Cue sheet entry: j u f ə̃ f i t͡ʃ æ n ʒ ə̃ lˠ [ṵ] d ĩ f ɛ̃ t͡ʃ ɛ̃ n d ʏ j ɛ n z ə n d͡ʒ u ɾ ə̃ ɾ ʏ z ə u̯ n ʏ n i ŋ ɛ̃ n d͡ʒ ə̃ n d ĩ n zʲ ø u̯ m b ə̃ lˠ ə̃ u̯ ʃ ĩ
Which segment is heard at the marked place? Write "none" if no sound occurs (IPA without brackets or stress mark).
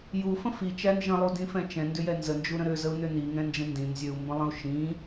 u